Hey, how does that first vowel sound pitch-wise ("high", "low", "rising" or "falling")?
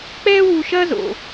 high